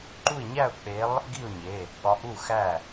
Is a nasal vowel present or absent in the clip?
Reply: absent